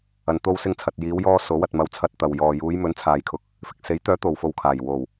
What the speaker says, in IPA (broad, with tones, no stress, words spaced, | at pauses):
ɐ˨n t̪o˧wsɪ˧ŋ t͡sʰɐ˨t̚jiː˨˧wjɔː˧ so˨˥wɐ˨t̚ mɐ˧wt͡sʰɐ˧t̚t̪ɐ˨w jɔː˨juː˨˧j mɵ˨˥nt͡sʰaː˨jkʰʊ˨˥k̚ | fɪ˨k̚se˨˥jt̪œː˨˥ t̪o˨wfo˧wkʰaː˨˩j wo˨˩w